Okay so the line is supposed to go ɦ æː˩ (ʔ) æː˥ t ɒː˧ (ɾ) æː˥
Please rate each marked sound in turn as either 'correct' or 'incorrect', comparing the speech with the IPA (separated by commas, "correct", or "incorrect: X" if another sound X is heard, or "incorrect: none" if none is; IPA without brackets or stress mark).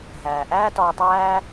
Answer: correct, incorrect: tˤ